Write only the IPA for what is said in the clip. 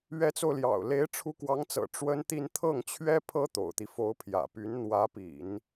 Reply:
ɥ ɛ˧˥ t͡s o˧ ʊ̯ l j ɑ̰˨˩ ʊ̯ l e˧˥ ɪ̯ ʈ͡ʂʰ u˧˥ k w ɑ˧˥ ŋ t͡s ɤ̰˨˩ ʈ͡ʂ w ə˥ n t̪ i˥˧ n t̪ʰ ɤ˥˩ ŋ t͡ɕʰ ɥ ɛ˥ pʰ ɤ˥ t̪ o̰˨˩ ʊ̯ t̪ i˦ f o˧˥ ʊ̯ pʰ j ä̰˨˩ p y˧˥ n n̪ w ä˧˥ p ḭ˨˩˦ n

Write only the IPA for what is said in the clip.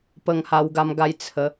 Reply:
p ə˧ ŋ h a˧ w ɡ a˧ m ɡ a˧ j t͡sʰ ə˨˦

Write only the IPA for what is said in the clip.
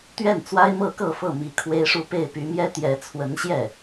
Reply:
t̪ ɥ ɛ˥˩ n t͡s w a˥ ɪ̯ m ɤ˥˧ k ɤ˥˧ f ɤ˥˩ m i˧˥ kʰ w e˥ ɪ̯ ʂ u˥˧ p e˥˩ ɪ̯ p y˧˥ m j ɛ˥ t̪ j ɛ˧˥ t͡sʰ w ə˧˥ n ɕ j ɛ˥˩

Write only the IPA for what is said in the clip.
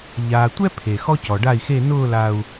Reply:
ʎ aː˨ tʷ ɛ˦ pʰ e˨ x ɔ˦ c ɔ˨ ɖ a˦˨ i̯ x e˦˨ n ʊː˦˨ l a˨ u̯

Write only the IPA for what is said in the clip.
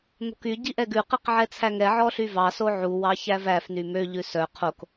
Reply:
n̪ o̤ k y ɟ i ʔ ɛ ɡ ʉ q i q ʕ ɛ t͡sʰ æ ŋ ɛ ʕ ɔ ɬ y v ɑ s o ʕ u w ɑ ç æ v æ f n y m ø ʎ ʉ s œ qʰ o k

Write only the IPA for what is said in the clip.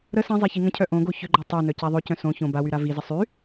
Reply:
ɾ ə s ɛ̃ zˤ e ç i ŋ ə̃ cʰ œ ʔ õ ɡ o ç ʏ ɡ͡ǃ o tˤ ø n œ c a ðˤ ø c œ̃ s õ ç õ b a w y ɾ a v i z ə sˤ y

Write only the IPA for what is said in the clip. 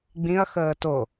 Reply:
ɡ͡b ĩ ɐ̯ x əː t o

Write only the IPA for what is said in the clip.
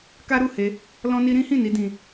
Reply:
k a˦ ɾ u˦˨ h e˧ | l ɔ̃˦ n i˦ ɾ ĩ˦ h ĩ˦˨ n i˧ d ĩ˧

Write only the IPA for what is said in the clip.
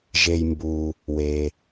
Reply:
ʒ e˩ j m b uː˩ | w eː˩

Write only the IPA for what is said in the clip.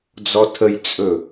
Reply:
d͡z ɔ tʰ ə j t͡sʼ ɵ

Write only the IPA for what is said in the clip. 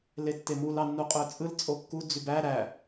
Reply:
l e tː e m u l ɑ nː u qʼ ø t͡sʼ ɯ l t͡sʼ o kː u d͡z y b æ ɾ æ

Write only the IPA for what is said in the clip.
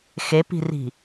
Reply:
x e p i̤ r i̤

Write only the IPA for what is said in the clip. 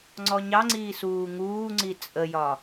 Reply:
ŋ͡ǀ ɔ ɲ ɑ ŋ͡ǀ iː s uː ŋ uː ŋ͡ǀ i t͡sʼ ə j ɒ

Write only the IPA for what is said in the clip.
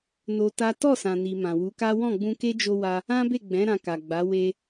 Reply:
n o˧ t a˦ t ɔ˦˨ s ã˨ n i˨ m ã˨ w u˨˦ k a˦ w ɔ̃˦˨ ɡ͡b ũ˧ k e˦ d͡ʒ o˧ w a˧ | ã˦ b e˦˨ ɡ͡b ɛ̃˨˦ ɾ ã˧ k a˨ ɡ͡b a˨˦ w e˧

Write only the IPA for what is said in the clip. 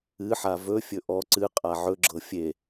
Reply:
ɨ ħ a v ɵ fʲ ɵ ʔ ɔ ǀ ɨ qʼ a ʕ ɵ ɡ͡ǁ ɤ fʲ e

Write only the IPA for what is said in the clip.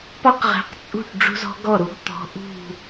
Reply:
p ɒ˥ q ʁ e̤˨˥ q t͡sʼ ṳ˥˩ ʈ ɖ͡ʐ ṳ˥ z ɔ̤˥ ɡ ɔ˥˩ ɾ u˨˥ ɡ t̪ ɔ̤˨˥ ʔ ṳ˥˩

